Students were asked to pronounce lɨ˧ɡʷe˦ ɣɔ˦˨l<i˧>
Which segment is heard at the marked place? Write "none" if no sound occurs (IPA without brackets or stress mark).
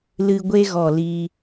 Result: iː˧